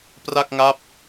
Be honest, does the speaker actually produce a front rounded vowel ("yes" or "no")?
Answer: no